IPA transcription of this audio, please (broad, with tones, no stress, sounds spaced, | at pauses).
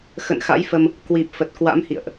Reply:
x ə̰˧˨ n x a̰˧˥ j f ə˧ m | k w i˨˩ p̚ f ə˨˩ t̚ k w a̰˧˥ m h ḭ˧˨ ə̯ ʔ